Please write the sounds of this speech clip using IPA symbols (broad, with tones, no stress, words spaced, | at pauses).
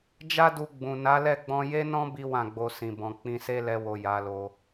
d͡ʒa˦du˧ɡ͡bũ˨ na˨˦lɛ˦˨ɡ͡bɔ̃˧ je˦nɔ̃˦ bi˦wã˦˨ɡ͡bo˧ sĩ˨bɔ̃˨ k͡pĩ˧se˦ lɛ˧wo˨ ja˨˦lo˧